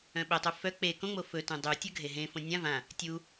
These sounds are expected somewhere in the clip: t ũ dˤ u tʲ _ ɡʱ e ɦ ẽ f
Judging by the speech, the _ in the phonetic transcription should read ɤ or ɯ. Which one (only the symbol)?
ɤ